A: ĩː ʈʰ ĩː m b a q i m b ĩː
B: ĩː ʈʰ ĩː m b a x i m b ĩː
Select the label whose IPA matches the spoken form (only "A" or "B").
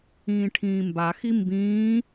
B